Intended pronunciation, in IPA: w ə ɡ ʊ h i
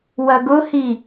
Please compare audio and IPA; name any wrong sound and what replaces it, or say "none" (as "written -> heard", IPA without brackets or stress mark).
ə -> ɐ